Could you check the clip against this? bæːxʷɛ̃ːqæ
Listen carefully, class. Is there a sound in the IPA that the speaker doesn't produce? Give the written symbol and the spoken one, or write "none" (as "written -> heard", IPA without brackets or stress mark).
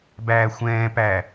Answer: q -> p